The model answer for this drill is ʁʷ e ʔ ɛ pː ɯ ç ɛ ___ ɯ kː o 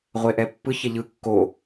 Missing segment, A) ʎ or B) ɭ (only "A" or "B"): A